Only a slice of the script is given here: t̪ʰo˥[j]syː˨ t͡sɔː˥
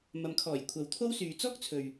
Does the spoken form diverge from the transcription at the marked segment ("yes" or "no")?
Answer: yes